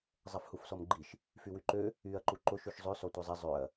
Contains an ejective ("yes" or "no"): no